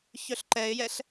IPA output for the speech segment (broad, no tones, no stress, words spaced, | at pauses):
çœɬǃɛɪ̯jɛɬ